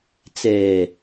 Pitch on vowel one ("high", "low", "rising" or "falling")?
low